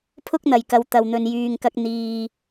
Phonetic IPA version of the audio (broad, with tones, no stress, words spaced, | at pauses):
pʰʊ˥k̚n̪ɐ˨jkɐ˨˧w t̪ɐ˧wn̪ɵ˧n jyː˧ŋkɐ˥k̚ n̪iː˧